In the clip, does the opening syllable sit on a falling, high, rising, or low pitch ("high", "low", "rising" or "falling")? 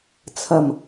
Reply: low